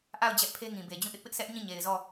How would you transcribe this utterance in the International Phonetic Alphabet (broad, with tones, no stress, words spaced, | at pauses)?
ʔa˦˨ʊ̯ d͡ʑɛ˦ʔpʰe˦ŋĩ˨be˨ d͡ʑũ˦˨ʔɪ˦ʔpɪ˦ʔ sɛ˦ʔɲĩ˦˨ ɲe˨ɪ̯zɔ˦˨